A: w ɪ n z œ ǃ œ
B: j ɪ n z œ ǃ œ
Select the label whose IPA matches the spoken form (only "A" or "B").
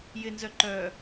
B